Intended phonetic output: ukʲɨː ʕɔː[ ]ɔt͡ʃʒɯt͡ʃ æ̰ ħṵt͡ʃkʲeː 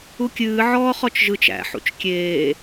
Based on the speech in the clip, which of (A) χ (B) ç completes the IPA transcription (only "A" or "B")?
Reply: A